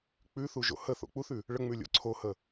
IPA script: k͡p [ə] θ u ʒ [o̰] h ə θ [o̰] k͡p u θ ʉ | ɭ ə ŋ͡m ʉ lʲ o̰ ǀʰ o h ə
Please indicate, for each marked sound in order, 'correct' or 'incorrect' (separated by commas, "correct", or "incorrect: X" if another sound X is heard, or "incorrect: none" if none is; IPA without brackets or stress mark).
incorrect: ʉ, correct, correct